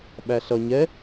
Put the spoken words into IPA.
ɓæɬʌ ɲɛ

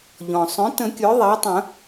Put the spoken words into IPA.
ʎɔ̃˩sˤœ̃˩˥ tə̃˨˩˦ kʲœ˩˥ðˤæ˩˥tˤə̃˨˩˦

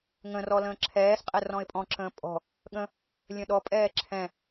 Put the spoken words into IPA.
ŋə̃rɔ lə̃ːǁʰɛːsqʼɛ rɔ̃ɪ̯pʼɔ̃ǁə̃ː pʼɔ̤ | ɠə̃ | lʲə̃ɗɔpʼɛː ǁʰɛ̃

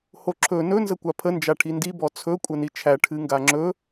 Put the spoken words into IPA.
hoǁʰɵ nɵ nzəkʷapʰə nd͡ʒaʈʰindi bɔt͡sʰɵ kʷʼənit͡ʃʰæ ʈʰɨŋɡaŋ͡ǁɵ

